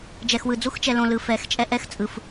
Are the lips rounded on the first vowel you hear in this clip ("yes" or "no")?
no